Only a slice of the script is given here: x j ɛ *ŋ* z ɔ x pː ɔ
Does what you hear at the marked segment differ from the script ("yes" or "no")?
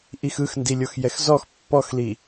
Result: yes